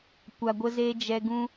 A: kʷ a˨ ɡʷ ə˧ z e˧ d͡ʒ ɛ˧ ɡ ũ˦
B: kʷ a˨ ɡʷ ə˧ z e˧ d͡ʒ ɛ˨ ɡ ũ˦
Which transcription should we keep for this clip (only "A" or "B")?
A